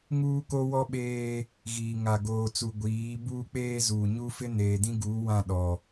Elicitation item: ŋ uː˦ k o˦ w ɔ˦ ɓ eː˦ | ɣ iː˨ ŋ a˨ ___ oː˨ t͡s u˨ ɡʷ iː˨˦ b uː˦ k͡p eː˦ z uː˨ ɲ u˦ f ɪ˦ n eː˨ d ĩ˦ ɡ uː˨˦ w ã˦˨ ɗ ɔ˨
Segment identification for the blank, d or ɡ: ɡ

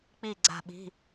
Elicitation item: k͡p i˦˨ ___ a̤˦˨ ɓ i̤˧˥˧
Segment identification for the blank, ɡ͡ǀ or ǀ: ɡ͡ǀ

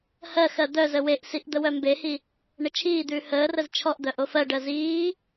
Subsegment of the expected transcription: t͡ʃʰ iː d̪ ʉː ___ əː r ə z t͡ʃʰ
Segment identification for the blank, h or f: h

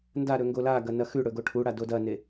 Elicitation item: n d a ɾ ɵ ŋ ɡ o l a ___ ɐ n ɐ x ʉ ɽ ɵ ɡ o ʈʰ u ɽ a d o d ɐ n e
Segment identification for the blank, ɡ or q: ɡ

